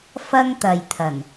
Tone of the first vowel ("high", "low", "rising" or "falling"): high